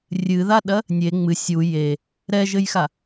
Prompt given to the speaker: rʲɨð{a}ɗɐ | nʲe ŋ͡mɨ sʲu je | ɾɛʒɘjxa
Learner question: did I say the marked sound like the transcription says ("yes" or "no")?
yes